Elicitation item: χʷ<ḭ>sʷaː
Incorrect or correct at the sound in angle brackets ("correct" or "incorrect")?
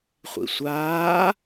correct